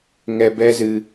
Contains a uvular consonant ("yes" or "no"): no